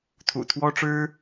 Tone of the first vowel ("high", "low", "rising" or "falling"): low